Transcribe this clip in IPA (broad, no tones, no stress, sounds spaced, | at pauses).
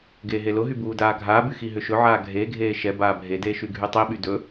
ɡ eː ɦ e l ʊ ɦ y b uː d aː ɡʱ aː b y x i ɦ ʏ ʃ ɵ ʕ aː ɡʱ e ɡʱ eː ʃ ɛ b aː bʱ e d eː ʃ y ɡʱ y tˤ i ɓ y d ɵ